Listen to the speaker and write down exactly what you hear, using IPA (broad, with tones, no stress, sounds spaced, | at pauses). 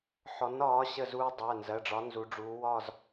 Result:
ħ ɔ˨˥ n ɒː˨˥ ɕ ə˦˨ z uː˦ dˤ ɜ˩˧˩ n z ɜ˩˧˩ ɖ͡ʐ ɒ˨˥ n z u˩˧ ɖ͡ʐ uː˩˧ w ɒ˦˨ z